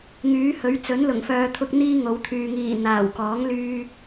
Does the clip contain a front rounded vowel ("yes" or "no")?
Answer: yes